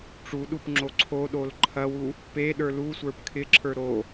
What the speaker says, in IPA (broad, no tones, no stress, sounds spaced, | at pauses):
ʈ͡ʂ u ɗ u p ŋ͡ǁ o ǀʰ o ɗ o l ǃʰ ɐ w u | p e ɗ ə˞ l u sʷ ə˞ p kʰ ɪ ǁʰ ə˞ ɾ o